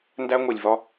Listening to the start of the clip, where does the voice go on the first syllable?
high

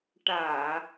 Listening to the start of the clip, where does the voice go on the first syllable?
low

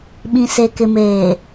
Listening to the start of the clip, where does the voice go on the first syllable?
low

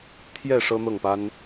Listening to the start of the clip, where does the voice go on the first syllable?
falling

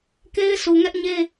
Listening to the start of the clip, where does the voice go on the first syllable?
high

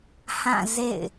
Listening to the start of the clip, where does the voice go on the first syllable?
falling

